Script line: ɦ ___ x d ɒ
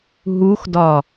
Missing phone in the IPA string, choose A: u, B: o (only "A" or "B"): A